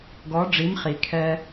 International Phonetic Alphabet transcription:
ɡɔ˨˥ ɖ͡ʐi˨˥mχi˩kʰɛ˧

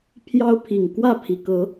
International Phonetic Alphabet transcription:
pʰjɑ˦ʊ̯pʰi˨˩ŋ kwä˥˨pʰi˩kɤ˨˦

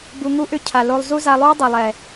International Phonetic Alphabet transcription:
bu˧ ŋu˦ʔʏ˦˨ cʰa˨lo˧lˠ zu˦za˧lˠuː˦ dˤɛ˨lˠɛ˨

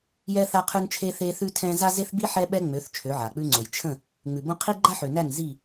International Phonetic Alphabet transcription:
jɛ˦ θa˦qʰʉ˦nt͡ʃʰe˦ θe˦θʉ˦tʰɛ̃˦ za˦ze˦θbi˦ ħɛ˦ɓɛ˦ŋ͡mø˨˦θ t͡ʃʰø˨˦ʕa˨k͡pʉ˦ŋ͡ǀo˨j t͡ʃʰə̃˦˨ | ŋ͡mʉ˨ bõ˦ qʰi˦ɡ͡ǃa˦ħø˨næ˦˨n zi˦˨

